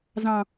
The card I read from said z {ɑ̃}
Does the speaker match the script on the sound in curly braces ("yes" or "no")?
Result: yes